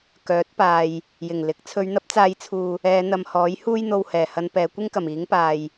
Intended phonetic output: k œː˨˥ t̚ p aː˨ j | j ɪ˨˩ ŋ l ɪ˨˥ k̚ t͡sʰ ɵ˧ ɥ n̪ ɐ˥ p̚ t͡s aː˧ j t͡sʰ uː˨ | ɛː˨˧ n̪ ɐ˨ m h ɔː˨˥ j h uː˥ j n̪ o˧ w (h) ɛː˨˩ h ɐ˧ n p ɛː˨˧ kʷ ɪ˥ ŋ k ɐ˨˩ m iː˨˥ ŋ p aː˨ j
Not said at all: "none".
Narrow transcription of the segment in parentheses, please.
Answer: h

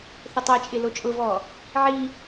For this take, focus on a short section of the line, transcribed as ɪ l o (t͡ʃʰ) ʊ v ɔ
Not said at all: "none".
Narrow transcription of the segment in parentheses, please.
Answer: t͡ʃʼ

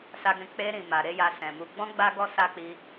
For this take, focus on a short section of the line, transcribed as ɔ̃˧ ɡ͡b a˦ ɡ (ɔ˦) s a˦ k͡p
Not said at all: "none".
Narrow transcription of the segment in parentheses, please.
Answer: ɔ˦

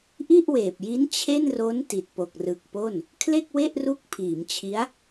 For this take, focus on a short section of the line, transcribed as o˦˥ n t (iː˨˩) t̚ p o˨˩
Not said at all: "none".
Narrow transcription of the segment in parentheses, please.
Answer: i˨˩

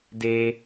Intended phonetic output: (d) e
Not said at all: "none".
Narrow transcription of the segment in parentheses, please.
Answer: d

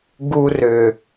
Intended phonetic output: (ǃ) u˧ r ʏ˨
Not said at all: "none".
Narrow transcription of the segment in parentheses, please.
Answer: ɡ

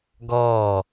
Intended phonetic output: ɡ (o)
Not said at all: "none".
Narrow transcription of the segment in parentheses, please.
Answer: ɔ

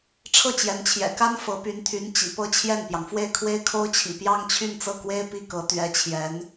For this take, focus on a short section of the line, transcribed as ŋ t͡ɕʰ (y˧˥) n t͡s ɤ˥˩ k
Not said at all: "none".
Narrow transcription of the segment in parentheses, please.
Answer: y˥˧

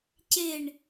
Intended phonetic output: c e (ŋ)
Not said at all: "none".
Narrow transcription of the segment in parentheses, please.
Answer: ɳ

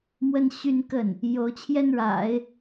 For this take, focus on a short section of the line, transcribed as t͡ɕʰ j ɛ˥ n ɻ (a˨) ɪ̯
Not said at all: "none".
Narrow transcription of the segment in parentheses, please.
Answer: a̰˨˩˦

